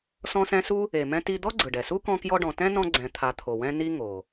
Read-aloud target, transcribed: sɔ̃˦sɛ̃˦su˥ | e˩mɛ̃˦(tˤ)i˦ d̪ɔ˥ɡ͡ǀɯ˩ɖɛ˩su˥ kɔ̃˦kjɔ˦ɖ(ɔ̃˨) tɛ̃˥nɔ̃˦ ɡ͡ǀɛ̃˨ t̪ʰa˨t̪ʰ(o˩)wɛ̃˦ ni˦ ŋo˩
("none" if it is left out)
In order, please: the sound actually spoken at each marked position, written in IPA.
t, ɔ̃˨, o˩

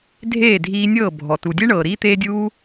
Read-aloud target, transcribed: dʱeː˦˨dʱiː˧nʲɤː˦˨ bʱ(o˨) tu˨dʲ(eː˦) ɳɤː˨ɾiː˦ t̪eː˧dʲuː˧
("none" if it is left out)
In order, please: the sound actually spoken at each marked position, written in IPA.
ɔ˨, e˦

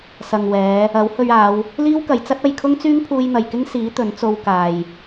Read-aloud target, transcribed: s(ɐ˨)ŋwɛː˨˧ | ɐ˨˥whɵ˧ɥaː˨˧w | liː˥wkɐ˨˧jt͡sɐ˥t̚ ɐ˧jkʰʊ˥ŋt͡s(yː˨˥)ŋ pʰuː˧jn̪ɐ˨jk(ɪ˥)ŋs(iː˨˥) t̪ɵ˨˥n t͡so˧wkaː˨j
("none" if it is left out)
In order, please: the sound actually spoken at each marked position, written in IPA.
ɐ˨, yː˥, ɪ˥, iː˨˥

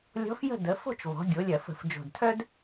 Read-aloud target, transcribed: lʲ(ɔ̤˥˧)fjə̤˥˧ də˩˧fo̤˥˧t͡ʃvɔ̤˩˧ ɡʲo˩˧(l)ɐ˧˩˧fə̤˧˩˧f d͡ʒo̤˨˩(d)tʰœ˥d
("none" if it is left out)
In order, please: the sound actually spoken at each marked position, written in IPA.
ɔ̤˧˥, lʲ, d

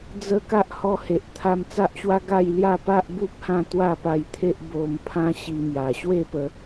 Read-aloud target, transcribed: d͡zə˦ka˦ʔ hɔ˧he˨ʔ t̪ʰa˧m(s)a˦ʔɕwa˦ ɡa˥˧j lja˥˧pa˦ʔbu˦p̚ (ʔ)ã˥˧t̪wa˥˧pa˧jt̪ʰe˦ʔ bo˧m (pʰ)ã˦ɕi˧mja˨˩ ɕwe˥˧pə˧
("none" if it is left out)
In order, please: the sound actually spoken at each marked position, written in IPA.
t͡s, h, pʰ

